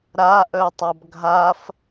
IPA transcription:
ɾ a ʔ œ tˤ a b ɡʱ a f

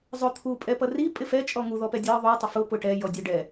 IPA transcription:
zˤ ʊ t̪ʰ u pʼ ɛ p ʌ r i pʼ ɪ f ɛ t͡ʃʼ ɔ ŋ u ð ɔ p ɛ dʲ ɜ ðˤ u tˤ ɪ f ʊ p ʊ ʈ ɛ j ɔ dʲ ɔ ɖ ɛ

